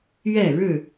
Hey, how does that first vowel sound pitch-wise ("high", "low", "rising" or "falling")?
falling